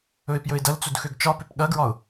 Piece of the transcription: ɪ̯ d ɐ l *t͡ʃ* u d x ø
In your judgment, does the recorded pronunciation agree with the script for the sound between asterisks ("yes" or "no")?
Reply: no